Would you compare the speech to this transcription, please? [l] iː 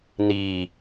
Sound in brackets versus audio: incorrect: n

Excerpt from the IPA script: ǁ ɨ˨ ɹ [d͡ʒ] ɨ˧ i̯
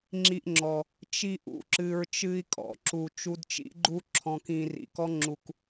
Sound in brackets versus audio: incorrect: t͡ʃ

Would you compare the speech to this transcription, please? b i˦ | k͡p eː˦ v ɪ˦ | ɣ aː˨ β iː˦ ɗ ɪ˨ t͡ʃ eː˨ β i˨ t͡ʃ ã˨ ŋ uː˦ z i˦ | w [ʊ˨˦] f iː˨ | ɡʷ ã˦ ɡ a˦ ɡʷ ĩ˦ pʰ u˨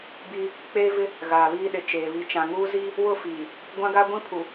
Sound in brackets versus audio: incorrect: ʊ˦˨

